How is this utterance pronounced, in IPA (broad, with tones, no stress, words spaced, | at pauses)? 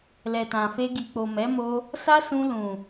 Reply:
lɛ˨tã˨fe˧ ɡi˨k͡po˨mɛ˨˦mo˧ | sa˦sũ˧ lũ˨